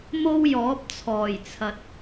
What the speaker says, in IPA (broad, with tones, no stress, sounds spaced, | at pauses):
m o˥ w j ɔː˨˥ p̚ t͡sʰ ɔː˨˩ j t͡sʰ ɐ˨ t̚